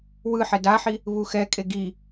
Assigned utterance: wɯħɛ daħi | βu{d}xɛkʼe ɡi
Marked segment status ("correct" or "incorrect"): incorrect